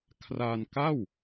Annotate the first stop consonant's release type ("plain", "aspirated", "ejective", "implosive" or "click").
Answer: aspirated